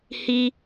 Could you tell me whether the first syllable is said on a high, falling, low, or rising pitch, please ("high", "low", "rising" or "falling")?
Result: high